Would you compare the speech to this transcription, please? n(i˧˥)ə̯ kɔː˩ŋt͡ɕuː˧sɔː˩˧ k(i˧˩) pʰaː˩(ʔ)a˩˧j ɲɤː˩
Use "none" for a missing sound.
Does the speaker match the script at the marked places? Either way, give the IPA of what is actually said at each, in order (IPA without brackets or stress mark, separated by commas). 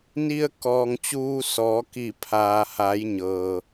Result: i˧, i˧˩, h